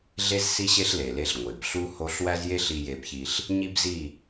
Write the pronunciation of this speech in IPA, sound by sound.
ɮ e˦ z s i˦ ɕ e˦ ɬ l e˨ l e˧ ɬ ŋʷ e˨ b ɬ u˦ h o˦ ɬ w æ˦ z j e˦ ɬ i˧ j e˧ b ç i˧ ɬ | ɲ i˦ b z i˦˨

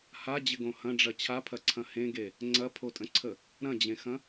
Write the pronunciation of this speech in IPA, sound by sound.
h a d͡ʑ ɪ ɡ õ h ɐ̃ ɖ͡ʐ ɐ t͡ɕʰ a pʰ ɐ ǀʰ ɐ̃ h ẽ ɡ e | ŋ͡ǀ ɐ pʰ o tʼ ə̃ ǀʰ ə | ɾ ɐ̃ d͡ʑ ẽ x ɐ̃

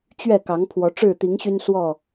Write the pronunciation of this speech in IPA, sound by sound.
t͡ɕ ɥ ɛ˥˨ k ɑ˨˦ ŋ pʰ w ɔ˨˦ ʈ͡ʂ ɻ̩˥˨ t̪ i˨˦ ŋ ɕ y˦ n s w ɔ˥˨

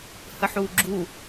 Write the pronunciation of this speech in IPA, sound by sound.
h ə ħ u ɡ͡ǁ u

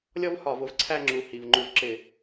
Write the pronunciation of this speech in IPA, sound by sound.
lʲ ɔ˥ v h ɒ˧˩˧ v ʊ˥ v ǀʰ æ˥˧ ŋ͡ǁ u˨˩ h i˨˩ v ŋ͡ǃ u˧˩˧ v ǁ ɪ˧˩˧

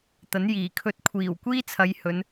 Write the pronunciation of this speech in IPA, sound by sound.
t̪ ɐ˨˥ n j iː˨˩ kʰ ɵ˧ t̚ kʷʰ iː˨˩ w kʷ iː˥ t͡sʰ ɐ˨˧ j h ɵ˨˧ n

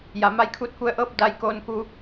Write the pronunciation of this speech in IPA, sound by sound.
j a˩˧ m a˧˥ j kʰ uː˧ t̚ k u˧ ə̯ ʔ ɤː˥˨ p̚ d a˧ j k oː˧ n k u˧

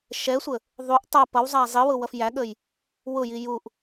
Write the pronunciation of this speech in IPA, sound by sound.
ʃ ɛ sʷ ə | ðˤ u ʔ tˤ ʌ p ʌ w zˤ æ zˤ i w ʊ w ʌ f j æ ɠ ə j | w ʊ j i j u ʔ

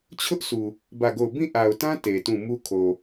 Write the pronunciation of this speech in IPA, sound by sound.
t͡ɕʰ ʊ˦ ʔ s u˨ | b ä˦˨ ɡ o˦˨ ʊ̯ b ĩ˦˨ ʔ a˨ ʊ̯ t ã˦ t e˨ t ũ˦˨ m u˦ kʰ o˨

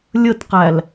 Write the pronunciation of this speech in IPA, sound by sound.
lʲ ə t q æ l

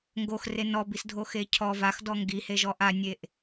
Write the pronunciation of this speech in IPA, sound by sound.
ŋ ɡ o x r e n ɔ b i s dʱ o x e cʰ ɔ v a x d ɔ ŋ ɡ i h e ʒ ɔ ʔ a nʲ e ʔ

